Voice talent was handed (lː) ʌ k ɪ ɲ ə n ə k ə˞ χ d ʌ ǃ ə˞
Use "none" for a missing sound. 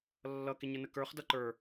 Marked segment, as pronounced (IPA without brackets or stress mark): lː